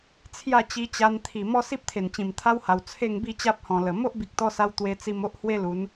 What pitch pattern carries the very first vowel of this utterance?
falling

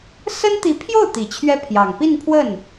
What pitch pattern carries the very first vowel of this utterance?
high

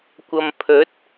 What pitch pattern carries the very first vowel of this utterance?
low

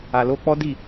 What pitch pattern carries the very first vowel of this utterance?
low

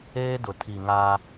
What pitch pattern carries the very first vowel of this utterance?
high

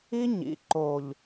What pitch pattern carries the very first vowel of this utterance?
high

